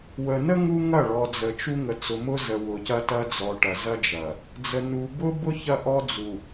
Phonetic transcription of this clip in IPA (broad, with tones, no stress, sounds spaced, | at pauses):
w ə˨ n ə˦ ŋ u˦ ŋ ɐ˦˨ ɭ ɔ˨ d͡z ə˨ t͡ʃ u˦ ŋ ə˨ t͡s ʊ˨ m ʊ˦ z ə˨ w ʊ˨ c ɐ˦ t ɐ˦ d͡z ɔ˨ ʈ ɐ˨ z ɐ˦ d͡ʒ ɐ˨ | d͡z ə˨ n u˨ b ʊ˦ b ʊ˦ ç ɐ˦ ʔ ɔ˦ d͡z u˨